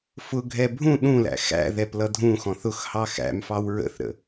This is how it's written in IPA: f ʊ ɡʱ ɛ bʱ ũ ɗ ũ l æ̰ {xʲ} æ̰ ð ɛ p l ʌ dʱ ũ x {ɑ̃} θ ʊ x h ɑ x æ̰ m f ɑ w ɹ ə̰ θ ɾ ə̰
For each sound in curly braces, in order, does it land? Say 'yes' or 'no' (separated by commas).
no, no